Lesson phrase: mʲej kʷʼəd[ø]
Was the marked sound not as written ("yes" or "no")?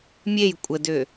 no